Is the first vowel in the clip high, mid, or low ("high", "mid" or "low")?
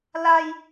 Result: low